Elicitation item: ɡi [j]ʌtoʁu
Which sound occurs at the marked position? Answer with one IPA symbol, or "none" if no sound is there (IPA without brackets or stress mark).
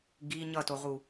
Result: ɲ